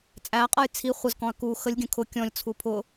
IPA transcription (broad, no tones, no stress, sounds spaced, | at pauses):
t͡sʼ æ qʼ ʌ j t͡sʰ i χʷ ə z k ɔ̃ ɐ̯ k u x ə lʲ ɡʲ ə̃ kʰ ʊ kʲ ɔ̃ lʲ t͡sʰ u pʰ ʊ